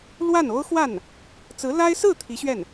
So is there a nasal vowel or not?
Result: no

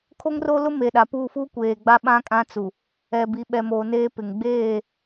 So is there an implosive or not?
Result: yes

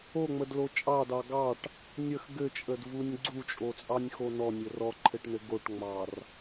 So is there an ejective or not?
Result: yes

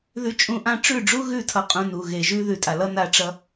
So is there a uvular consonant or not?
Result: yes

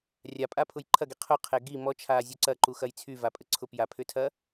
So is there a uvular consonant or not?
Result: yes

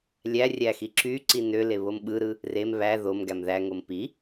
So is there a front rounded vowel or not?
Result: yes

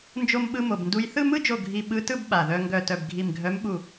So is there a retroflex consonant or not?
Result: no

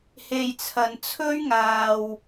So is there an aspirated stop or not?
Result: yes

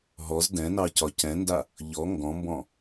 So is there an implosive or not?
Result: no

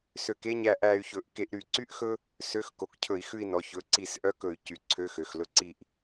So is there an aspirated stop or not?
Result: yes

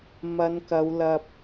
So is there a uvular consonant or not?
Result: no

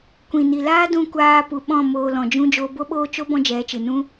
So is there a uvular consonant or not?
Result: no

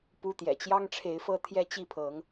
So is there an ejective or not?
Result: no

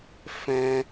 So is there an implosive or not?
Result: no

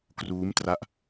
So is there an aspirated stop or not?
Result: no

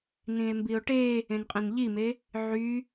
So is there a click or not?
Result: no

